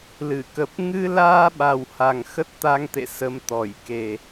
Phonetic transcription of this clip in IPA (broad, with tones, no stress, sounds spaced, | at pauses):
l ɨ˧˩ k ə˨˩ p̚ ŋ ɨ˧ l aː˧ ɓ a˨˩ w h a˨˩ ŋ x ə˦˥ t̚ t̪ a˧ ŋ t̪ ḛ˧˨ s ə˨˦ m t̪ ɔ˧˩ j k e˨˩